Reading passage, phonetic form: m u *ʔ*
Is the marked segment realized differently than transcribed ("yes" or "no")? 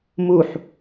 yes